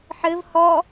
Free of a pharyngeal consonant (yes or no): no